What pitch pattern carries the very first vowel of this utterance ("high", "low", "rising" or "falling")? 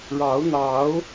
rising